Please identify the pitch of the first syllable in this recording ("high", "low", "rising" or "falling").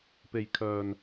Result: low